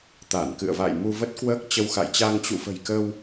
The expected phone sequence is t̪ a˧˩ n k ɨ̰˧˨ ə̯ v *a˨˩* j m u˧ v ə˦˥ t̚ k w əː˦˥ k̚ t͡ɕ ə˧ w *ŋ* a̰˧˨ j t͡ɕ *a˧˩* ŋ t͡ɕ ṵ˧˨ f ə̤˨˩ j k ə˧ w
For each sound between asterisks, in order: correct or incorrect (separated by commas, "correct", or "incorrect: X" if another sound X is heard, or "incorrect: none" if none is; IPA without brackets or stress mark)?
incorrect: a̰˧˨, incorrect: x, incorrect: a˧